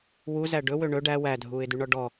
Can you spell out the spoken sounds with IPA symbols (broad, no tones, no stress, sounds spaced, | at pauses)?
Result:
w u z æ ɖ ɵ w ø ɳ ɵ ɖ æ w æ dʱ uː ɪ̯ d y ɳ ɔ ɖ ɔ